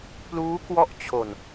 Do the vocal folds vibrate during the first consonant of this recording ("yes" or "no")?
no